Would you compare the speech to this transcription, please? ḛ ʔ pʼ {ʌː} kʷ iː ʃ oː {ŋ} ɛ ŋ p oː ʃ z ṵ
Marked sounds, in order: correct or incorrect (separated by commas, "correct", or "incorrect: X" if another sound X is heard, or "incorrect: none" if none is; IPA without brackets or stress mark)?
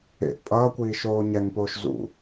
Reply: correct, incorrect: ɲ